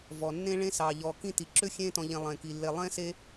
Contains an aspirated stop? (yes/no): no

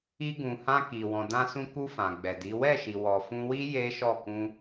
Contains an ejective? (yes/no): no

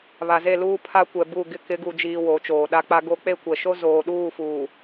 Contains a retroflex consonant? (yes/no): no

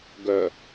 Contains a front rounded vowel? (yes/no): yes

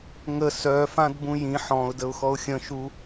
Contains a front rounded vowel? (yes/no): yes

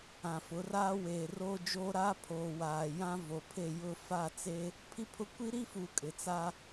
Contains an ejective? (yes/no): yes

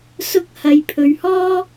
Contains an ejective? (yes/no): no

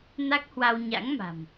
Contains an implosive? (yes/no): no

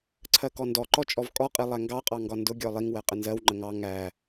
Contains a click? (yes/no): yes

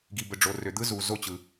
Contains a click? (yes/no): no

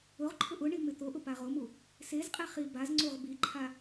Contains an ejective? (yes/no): yes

